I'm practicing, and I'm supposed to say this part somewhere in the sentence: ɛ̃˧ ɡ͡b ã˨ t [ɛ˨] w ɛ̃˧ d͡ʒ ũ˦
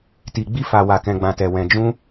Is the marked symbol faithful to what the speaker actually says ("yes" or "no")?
yes